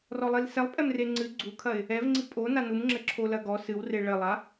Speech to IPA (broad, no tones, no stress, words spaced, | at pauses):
rɔlˠilsɛlˠ pʼɛmreŋ͡ǀɨ ɡ͡ǀukʰɐɪ̯ | ɛvŋ͡ǀi pʼo nanumŋ͡ǁɘ ǁʰolɐɡɔ sɨw reɭɘlˠa